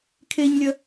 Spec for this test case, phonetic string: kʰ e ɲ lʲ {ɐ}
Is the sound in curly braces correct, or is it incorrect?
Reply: correct